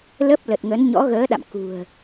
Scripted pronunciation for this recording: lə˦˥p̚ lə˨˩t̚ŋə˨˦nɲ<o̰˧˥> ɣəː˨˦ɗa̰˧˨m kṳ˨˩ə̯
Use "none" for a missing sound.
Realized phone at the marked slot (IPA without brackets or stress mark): ɔ̰˧˥